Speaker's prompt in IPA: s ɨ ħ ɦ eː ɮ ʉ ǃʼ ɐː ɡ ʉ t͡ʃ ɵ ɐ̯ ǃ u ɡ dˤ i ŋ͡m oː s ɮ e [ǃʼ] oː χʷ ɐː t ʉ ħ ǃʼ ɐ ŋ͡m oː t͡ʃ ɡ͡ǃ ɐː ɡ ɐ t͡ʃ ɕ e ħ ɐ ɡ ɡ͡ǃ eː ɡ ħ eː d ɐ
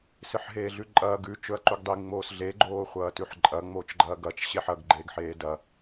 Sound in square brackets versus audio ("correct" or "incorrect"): incorrect